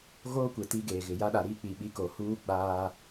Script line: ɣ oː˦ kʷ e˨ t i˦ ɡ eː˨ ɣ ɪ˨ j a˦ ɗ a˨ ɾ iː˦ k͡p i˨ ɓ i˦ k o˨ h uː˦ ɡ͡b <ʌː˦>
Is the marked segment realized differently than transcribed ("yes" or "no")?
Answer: yes